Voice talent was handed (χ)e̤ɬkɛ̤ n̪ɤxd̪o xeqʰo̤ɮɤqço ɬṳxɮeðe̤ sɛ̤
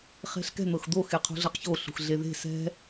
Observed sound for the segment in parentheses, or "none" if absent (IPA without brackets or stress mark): χ